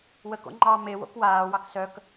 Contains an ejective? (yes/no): no